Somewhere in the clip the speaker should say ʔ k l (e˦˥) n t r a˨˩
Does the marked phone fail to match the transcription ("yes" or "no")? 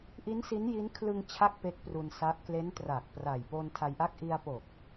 no